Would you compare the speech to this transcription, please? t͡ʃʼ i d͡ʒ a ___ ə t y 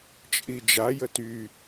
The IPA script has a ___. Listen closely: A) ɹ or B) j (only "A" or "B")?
B